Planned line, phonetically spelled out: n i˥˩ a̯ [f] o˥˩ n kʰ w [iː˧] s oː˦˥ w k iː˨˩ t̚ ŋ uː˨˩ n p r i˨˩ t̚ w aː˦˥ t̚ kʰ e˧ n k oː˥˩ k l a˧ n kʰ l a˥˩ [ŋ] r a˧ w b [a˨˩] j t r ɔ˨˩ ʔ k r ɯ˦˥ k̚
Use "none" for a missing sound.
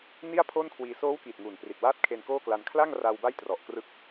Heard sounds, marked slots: pʰ, iː˧, ŋ, a˥˩

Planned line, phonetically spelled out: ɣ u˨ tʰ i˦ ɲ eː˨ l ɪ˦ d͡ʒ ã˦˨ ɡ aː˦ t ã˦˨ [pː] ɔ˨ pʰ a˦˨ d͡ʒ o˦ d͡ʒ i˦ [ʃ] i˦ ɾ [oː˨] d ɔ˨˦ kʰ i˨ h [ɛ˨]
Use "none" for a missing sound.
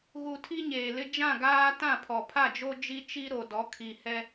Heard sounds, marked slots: pʰ, t͡ʃ, o˨, ɛ˦

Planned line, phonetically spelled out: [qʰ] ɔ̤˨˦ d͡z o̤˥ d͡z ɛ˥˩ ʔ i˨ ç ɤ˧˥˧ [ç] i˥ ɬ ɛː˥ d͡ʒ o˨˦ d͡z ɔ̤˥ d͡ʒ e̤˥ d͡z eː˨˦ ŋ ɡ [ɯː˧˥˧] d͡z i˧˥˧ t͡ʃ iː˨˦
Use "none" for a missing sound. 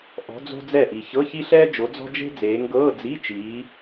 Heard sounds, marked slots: ʔ, ç, ɤː˧˥˧

